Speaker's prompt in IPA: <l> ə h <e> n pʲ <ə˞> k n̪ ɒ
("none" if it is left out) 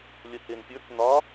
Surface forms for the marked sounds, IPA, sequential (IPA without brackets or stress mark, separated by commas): lʲ, e, ə˞